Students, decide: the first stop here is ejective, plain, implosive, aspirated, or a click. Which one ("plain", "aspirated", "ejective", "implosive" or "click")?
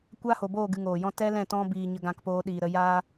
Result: plain